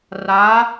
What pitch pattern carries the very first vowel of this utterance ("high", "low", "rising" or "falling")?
rising